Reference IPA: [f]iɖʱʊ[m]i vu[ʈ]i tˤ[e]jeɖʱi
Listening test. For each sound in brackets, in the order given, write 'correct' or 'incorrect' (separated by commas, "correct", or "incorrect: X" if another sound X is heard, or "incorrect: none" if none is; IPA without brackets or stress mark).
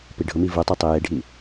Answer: incorrect: p, correct, incorrect: tˤ, incorrect: i